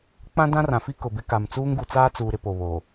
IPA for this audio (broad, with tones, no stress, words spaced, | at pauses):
k͡pã˦ dã˦rã˨fi˦ kʊ˨bɪ˦ka˨m t͡suː˦ŋɡu˨t͡saː˦t͡suː˨ ɾɪ˦po˨βoː˨